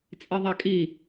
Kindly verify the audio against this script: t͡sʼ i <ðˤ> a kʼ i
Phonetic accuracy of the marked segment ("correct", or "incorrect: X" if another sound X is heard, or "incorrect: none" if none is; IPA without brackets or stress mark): correct